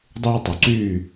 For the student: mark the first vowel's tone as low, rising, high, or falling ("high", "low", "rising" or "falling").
high